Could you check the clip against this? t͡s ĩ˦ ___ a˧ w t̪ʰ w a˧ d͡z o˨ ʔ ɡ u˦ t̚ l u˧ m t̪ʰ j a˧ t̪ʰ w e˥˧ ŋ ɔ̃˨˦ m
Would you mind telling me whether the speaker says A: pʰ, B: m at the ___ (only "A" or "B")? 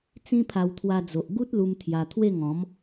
A